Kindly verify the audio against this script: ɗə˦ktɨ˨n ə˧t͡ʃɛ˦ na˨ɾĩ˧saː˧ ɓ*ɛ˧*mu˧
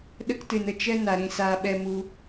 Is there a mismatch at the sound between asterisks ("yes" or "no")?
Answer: no